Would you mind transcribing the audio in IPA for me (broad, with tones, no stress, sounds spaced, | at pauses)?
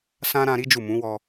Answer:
s ã˦ ɾ ã˧ ɾ i˦ d͡ʒ u˦˨ m ũ˨˦ w ɔ˧